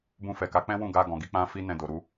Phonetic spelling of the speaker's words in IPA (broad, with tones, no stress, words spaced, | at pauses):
bũ˧fɛ˨ ka˨˦k͡pɛ̃˦ wũ˦˨ɡa˧ɡɔ̃˨ɡi˨˦ k͡pã˦fi˦ nɛ̃˧do˨ ɾu˧